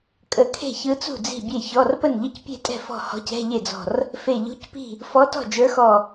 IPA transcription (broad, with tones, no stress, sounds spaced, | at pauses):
kʼ ə˧˩ kʰ e̤˥˩ ç ɯ˧˥ t͡s ṳ˥˩ d͡z i̤˥˩ bʲ e˥˩ ç ɔ˧˥˧ r p ə˥˩ n ʎ ə˥˩ c pʲ e̤˥˩ tʼ ɛ̤˥˩ f ɔ̤˥˩ h ɔ̤˧˥ c ɛ̤˧˥˧ ʎ e˥˩ d͡z ɔ̤˧˩ r | f e˧˩ ʎ ṳ˧˥˧ c p i̤˥˩ | f ɔ˧˥ t ɔ̤˥˩ d͡ʒ ə˞˧˥ x ɔ˧˩